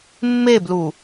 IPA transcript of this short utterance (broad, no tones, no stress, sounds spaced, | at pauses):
mː e b l u